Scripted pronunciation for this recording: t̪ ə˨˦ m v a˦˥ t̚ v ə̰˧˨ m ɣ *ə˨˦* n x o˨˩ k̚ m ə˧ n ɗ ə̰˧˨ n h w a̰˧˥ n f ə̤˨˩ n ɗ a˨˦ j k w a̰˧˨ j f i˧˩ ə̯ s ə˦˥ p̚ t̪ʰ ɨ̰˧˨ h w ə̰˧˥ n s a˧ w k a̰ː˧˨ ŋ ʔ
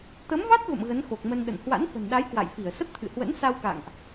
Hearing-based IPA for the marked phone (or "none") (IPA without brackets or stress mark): ə˨˦